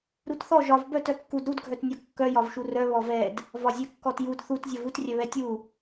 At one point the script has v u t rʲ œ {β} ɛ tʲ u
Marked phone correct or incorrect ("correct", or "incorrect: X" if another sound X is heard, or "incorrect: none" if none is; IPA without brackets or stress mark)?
correct